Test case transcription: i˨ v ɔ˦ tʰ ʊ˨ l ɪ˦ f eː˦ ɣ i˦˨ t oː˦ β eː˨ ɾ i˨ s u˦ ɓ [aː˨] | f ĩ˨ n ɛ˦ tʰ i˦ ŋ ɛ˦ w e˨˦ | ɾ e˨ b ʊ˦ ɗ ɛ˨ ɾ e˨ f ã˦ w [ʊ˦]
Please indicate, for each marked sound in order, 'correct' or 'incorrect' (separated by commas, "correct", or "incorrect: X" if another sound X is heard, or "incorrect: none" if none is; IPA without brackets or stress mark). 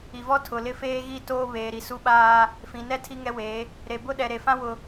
incorrect: aː˦, incorrect: ʊ˨